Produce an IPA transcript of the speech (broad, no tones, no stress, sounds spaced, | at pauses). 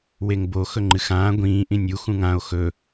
w e ŋ b o x ɵ ŋ͡ǃ ɨ x ãː ɡʷ ĩː ʔ ĩ nʲ u x ũ ŋ ã o̯ x ɵ